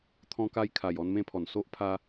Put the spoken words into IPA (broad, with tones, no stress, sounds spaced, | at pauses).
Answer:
t̪ʰ ɔ̃˧ k a˧ j kʰ a˨˩ j ɔ˧ n m ẽ˧ pʰ ɔ˨˩ n s o˦ ʔ pʰ a˧